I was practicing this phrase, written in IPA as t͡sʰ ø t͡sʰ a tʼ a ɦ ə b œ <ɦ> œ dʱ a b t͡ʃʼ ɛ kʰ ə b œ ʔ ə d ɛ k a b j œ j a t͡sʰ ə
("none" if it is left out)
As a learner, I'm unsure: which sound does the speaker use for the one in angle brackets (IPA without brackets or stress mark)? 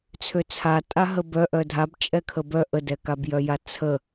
ʔ